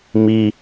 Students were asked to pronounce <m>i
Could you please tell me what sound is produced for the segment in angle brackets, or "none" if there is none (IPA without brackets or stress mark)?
m